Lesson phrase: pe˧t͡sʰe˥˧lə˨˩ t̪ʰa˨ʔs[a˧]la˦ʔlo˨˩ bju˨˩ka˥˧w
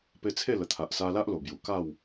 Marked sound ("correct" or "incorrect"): correct